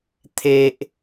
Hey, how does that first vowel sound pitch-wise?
high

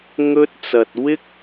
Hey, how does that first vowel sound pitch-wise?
high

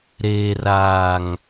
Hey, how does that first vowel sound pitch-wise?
low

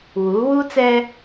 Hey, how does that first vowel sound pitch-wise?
rising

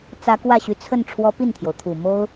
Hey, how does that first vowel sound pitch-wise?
rising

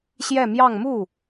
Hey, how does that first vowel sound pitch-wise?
falling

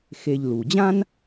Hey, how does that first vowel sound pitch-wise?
low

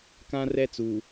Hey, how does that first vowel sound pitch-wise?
high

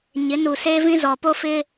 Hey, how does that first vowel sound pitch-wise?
rising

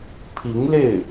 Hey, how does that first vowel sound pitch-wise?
rising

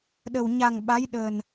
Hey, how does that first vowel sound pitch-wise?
low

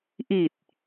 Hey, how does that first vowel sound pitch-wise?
low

